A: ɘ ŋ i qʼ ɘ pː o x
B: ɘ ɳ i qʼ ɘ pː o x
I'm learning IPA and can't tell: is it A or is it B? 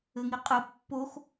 A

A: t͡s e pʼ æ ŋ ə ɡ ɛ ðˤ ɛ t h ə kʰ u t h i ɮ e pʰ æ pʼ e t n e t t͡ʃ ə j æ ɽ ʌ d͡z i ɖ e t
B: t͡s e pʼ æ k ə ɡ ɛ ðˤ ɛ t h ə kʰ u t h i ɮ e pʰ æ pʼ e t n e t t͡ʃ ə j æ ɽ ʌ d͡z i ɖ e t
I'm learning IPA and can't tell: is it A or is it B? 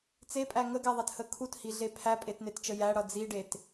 A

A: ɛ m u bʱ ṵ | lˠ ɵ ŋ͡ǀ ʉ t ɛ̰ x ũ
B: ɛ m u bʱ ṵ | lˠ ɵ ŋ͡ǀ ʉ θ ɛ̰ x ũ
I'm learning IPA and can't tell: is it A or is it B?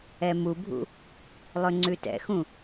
A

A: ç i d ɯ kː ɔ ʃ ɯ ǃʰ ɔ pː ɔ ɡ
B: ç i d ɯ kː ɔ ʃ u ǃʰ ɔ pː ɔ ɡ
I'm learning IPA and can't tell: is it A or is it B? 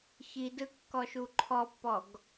B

